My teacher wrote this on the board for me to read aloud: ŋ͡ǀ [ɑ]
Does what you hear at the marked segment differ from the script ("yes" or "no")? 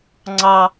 no